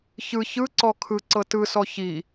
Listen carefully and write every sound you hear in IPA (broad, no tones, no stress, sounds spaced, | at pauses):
ç ɯ ç ɯ ǀ ɔ kʰ ɯ ǀ ɤ t ɯ s ɔ ç i